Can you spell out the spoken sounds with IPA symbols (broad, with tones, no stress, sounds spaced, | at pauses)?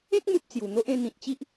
ẽ˦ k̚ m u˦ p̚ t͡s j u˨˩ n̪ o˦ ʔ ẽ˥˧ n̪ ĩ˨ t̚ t͡ɕ i˦ ʔ